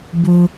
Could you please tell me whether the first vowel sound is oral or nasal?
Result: oral